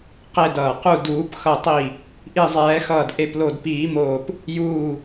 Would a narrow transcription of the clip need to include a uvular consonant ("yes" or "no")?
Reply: yes